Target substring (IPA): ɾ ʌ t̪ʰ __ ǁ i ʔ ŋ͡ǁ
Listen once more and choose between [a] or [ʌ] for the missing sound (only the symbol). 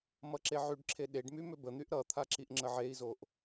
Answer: a